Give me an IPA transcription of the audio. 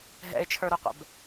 ɦ ɛ̰ ɪ̯ t͡ʃʰ ə˞ ɾ o qʷ ɛ̰ b

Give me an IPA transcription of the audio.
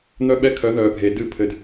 n̪ œ˦ ɓ ɛ˦ kʰ œ˨˦ ð œː˨ bʱ e˨ d ɨ˦˨ pʰ ɘ˨ d

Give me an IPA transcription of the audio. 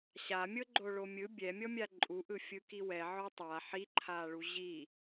ɕ a mʲ ɤ ɡ͡ǃ o ɭ o mʲ ɯ bʲ ɛ mʲ ɔ mʲ a ǃʼ u ʔ ɯ fʲ ɯ k i w ɛ ʕ ɔ tˤ a ħ i ǃʰ a ɭ u ʑ i

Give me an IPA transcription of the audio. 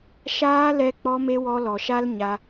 ʃ aː˧ l ɛ˧ k͡p ɔ˧ m e˧ w ɔ˧ l ɔ˨ ʃ a˦ l ɲ a˧

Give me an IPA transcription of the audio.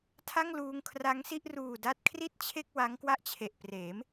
tʰ a˥˩ ŋ l uː˧ ŋ kʰ r a˦˥ ŋ s i˥˩ ʔ r uː˨˩ d a˦˥ t̚ kʰ r i˥˩ t̚ t͡ɕʰ e˥˩ k̚ w a˦˥ ŋ k w a˥˩ ʔ t͡ɕʰ e˨˩ ʔ p r eː˩˦ m

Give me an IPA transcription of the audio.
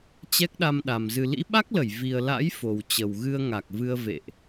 t͡ɕ ɛ˦˥ k̚ ɗ a˧ m ɗ a˨˩ m z ɨ˨˩ l ḭ˧˥ ɓ a˦˥ k̚ l ə˧˩ j v i˨˩ ə̯ l a̰˧˥ j f o˨˩ w t͡ɕ ə˨˩ w ɣ ɨ˧ ə̯ ŋ a˨˩ k̚ v ɨ˧ ə̯ v ḛ˧˨ ʔ

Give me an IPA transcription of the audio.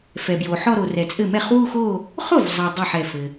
f ɛ˨ b j o˨ ħ ɔ˥˧ ɾ o˨ r ɛ˨ t͡sʼ ɘ˥˩ m ɛ˥˩ χ w u˥˧ x o˥˧ | χ o˥˩ v zˤ ɛ˨ dˤ ɛ˥˩ ħ ɛ˥˩ f ɘ˨

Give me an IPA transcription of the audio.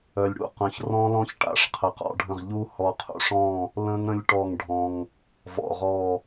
œ˨ lʲ ɽ ṵ˦˨ q œ̃˨ ç r ɔ̃˦˥ l ɔ̃˦˥ ç ʈ a̰˨ ʂ qʰ ə˨ q ɔ̰˨ ɖʱ ə̃˦˨ ʁ ʎ u˦˥ h ɔ˨ qʰ ṵ˨ ʂ ɔ̃˦˨ | l ə̃˦˥ ŋ ɾ ə̃˦˥ lʲ ʈ ɔ˦˨ ŋ ɖʱ ɔ̃˨ ŋ | v ɔ̰˨ ʁ ɔ˦˨

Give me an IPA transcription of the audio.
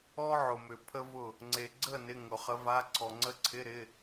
ɔ˥ ʕ ʊ˨ m ʏ˨ pʰ ə˥ v ʊ˥˨ | ŋ͡ǀ e˨ ɡ͡ǀ ə˥˨ n ɪ˧˥˧ ŋ ʊ˨˩˦ χ ə˧˥ v a˧˥˧ ǀʰ ɔ˨ ŋ͡ǀ ə˧˥ ǀʰ ɪ˧˥˧ ɾ ɪ˧˥˧

